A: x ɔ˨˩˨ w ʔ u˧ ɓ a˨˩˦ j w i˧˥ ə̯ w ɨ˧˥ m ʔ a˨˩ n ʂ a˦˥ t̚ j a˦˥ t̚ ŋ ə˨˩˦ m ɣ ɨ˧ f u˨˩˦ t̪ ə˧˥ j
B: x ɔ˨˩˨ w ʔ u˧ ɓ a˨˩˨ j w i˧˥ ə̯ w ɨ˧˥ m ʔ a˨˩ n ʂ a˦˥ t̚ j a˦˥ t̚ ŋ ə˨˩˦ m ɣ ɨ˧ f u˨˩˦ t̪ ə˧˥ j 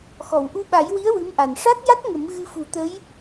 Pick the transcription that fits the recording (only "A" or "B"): A